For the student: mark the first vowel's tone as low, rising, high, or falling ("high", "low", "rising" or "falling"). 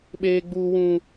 high